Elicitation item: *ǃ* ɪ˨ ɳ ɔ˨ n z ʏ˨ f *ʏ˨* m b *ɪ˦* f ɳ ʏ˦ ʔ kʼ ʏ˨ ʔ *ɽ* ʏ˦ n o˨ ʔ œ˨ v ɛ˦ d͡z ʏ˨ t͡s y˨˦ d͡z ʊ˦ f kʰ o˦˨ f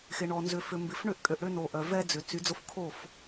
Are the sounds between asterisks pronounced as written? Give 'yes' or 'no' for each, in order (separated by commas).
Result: no, yes, no, yes